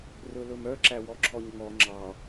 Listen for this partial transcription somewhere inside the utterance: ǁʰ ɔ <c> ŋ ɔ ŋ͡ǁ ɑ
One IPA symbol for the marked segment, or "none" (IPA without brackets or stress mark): ɲ